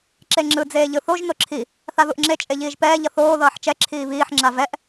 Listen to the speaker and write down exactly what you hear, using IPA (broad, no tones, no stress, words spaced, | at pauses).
ǁeŋ͡ǁɯ d͡zeːʎɯθoʒ noǁʰi | θaðuʔŋ͡ǁe t͡ʃʼeʎiːʒpɛː ʎʌθoː ðʌːħt͡ʃɛ ǁʰiːβiːħ ŋ͡ǁavɛʔ